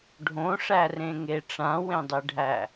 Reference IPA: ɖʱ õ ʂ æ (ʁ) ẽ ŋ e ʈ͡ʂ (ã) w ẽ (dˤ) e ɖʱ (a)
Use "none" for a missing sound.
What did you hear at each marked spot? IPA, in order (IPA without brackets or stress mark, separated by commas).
r, ã, dˤ, æ